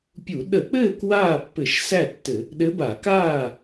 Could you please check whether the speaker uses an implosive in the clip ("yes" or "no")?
yes